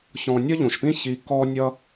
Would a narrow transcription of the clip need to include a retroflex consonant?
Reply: no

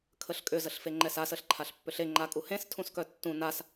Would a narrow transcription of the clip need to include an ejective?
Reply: yes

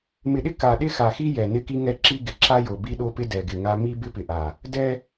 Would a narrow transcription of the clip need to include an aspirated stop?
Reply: no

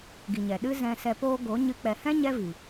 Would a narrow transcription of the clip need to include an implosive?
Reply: yes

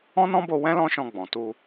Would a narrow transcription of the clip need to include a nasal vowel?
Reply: yes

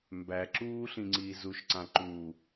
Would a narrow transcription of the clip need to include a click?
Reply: yes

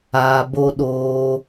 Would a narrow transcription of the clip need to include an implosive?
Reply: yes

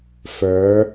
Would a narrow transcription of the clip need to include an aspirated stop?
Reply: no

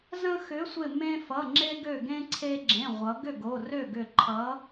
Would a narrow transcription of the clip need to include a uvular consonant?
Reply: yes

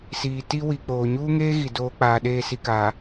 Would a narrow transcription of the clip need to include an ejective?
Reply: no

